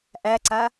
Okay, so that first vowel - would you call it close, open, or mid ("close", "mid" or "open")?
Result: open